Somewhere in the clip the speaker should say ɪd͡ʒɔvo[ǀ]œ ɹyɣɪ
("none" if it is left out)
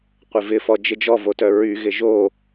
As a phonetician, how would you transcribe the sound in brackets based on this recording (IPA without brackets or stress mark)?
t